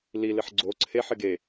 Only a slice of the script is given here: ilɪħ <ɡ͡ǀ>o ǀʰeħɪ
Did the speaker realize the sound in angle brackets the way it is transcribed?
yes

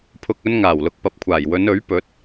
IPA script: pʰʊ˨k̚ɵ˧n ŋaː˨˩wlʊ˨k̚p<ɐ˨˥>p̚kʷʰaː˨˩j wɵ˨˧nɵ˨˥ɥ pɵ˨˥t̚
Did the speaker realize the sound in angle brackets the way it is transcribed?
yes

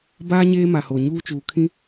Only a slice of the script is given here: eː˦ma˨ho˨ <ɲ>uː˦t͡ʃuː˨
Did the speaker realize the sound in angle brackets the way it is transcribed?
yes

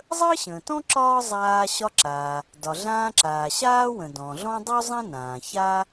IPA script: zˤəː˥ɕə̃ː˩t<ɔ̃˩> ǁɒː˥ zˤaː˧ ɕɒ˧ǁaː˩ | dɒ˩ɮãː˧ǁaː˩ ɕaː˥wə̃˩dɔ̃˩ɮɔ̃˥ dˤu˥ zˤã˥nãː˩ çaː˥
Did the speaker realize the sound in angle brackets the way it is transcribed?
no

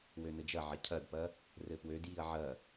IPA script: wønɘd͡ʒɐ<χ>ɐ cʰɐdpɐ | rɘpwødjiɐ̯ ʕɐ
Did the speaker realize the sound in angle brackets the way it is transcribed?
no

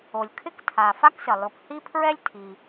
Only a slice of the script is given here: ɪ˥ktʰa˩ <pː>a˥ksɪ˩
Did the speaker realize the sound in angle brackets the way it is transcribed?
no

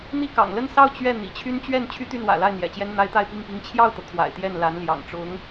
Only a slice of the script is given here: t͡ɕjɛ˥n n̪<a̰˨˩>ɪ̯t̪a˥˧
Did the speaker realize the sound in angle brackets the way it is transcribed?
no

